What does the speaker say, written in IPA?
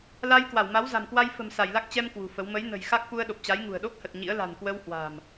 l a˧ j k w a˧˩ w m a˨˦ w z a̤˨˩ m k w a˧ j f ə̤˨˩ m s a˧˩ j l a˦˥ k̚ t͡ɕ ɛ˧ m k w ṳ˨˩ f ə˨˦ w m ə˨˦ j n ə̤˨˩ j x a˦˥ k̚ f u˧ ə̯ ɗ o˨˩ p̚ t͡ɕ a˨˦ j ŋ ṳ˨˩ ə̯ ɗ o˦˥ k̚ h ə˨˩ t̚ ɲ ḭ˧˥ ə̯ l a̤˨˩ n k w ə˧ w h w a̤˨˩ m

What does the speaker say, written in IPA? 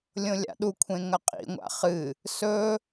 lʲ õ lʲ a̰ ɗ u kʷʰ ẽ ŋ ɐ qʼ ḭ ŋʷ a̰ χ ɨ | s ɵ

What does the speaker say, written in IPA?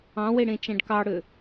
ɑ̃ w e ɽ ẽ t͡ʃ æ̃ ɖ k ɑ ɽ ø

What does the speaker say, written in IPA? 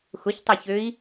x ʊ ç tˤ a ç ø i̯

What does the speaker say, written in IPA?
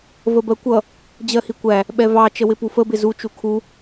v ə b ɜ kʷ ʌ | d͡ʑ ɜ h i kʷ æ | ɓ ɛ v ɑ t͡ʃ ə w ɪ p u f ə b ɪ z u t͡ʃ u kʰ u

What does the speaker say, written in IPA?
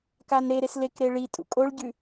k a n ɾ e ɾ e s l e k ɾ e ɭ i tʼ ṵ kʼ o ɭ ɟ ʉ

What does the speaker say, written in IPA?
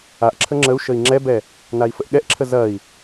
a ʔ ǁʰ ə ŋ͡ǁ ə u̯ ʃ ə i̯ ŋ͡ǁ ɛ b ɛ | n a i̯ f ə ʔ ɠ ɛ ʔ ǁʰ ə z ɐ i̯

